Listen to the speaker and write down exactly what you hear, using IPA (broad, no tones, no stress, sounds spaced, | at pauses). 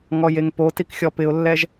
ŋ ɔ j e ŋ p o t i k xʲ ɔ p ɪ ʊ̯ lː ɛ ʒ